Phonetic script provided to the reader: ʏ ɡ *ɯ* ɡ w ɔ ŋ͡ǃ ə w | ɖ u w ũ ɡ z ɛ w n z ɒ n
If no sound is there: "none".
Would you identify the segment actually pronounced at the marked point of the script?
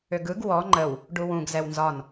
ɯ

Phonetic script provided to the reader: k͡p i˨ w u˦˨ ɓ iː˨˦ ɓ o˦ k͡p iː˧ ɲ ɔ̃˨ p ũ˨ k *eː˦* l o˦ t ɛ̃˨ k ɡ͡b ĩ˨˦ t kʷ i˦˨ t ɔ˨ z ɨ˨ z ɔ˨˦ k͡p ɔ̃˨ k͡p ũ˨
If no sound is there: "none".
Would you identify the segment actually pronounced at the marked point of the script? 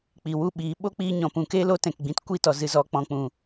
eː˦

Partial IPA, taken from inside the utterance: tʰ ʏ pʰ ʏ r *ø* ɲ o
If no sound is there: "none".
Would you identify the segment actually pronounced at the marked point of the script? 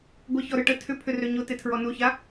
ø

